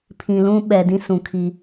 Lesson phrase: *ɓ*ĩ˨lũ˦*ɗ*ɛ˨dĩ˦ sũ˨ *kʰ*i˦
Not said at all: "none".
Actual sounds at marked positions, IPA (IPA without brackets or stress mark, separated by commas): pʰ, ɓ, kʰ